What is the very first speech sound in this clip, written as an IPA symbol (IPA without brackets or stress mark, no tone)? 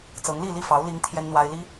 t͡s